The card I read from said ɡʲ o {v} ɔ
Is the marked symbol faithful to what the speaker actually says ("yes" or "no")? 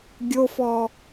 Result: no